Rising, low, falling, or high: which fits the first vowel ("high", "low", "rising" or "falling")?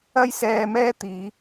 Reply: high